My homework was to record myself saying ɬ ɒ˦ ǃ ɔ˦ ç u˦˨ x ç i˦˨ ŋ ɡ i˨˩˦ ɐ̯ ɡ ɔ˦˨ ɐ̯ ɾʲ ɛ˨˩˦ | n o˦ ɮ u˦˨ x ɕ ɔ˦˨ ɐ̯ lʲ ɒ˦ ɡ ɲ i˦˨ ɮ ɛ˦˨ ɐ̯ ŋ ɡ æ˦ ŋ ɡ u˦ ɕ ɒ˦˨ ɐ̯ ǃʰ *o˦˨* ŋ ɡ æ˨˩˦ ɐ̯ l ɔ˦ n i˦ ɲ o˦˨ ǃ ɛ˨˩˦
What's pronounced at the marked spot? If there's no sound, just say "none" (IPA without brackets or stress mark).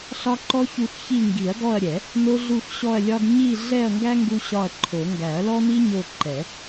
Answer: o˨˩˦